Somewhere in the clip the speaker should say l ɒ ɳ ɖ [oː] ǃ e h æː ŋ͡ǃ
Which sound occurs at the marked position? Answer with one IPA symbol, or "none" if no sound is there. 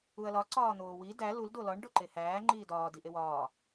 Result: o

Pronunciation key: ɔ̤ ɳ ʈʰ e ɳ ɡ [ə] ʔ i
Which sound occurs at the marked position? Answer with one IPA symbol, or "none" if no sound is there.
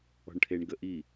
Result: ə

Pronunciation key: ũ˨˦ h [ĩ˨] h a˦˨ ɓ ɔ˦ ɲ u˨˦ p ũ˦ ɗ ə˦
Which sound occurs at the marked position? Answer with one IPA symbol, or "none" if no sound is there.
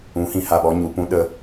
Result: ĩ˨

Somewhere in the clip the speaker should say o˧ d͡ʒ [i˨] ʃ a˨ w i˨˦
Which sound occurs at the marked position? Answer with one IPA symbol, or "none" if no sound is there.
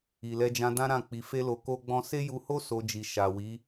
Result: i˨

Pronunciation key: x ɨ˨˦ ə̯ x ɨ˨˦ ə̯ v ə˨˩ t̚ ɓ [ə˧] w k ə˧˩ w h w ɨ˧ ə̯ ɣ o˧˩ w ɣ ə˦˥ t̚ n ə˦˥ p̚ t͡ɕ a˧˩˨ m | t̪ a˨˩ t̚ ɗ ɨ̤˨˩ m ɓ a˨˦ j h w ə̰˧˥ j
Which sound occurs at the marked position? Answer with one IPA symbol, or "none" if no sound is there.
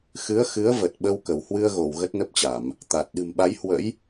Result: ə˧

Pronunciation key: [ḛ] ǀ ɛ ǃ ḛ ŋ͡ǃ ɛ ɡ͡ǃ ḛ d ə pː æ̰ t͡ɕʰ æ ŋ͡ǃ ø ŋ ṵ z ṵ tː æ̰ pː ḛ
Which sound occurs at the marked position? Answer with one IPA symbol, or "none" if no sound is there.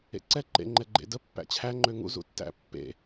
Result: ḛ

